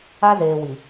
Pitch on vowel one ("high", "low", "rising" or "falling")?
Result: high